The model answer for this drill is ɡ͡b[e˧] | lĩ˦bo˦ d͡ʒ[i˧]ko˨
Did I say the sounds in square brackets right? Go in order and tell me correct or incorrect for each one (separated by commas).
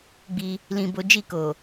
incorrect, incorrect